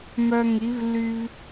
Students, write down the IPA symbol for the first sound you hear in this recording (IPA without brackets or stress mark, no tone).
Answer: m